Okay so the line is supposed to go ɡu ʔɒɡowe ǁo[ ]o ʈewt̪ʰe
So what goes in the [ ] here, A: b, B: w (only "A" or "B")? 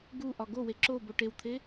A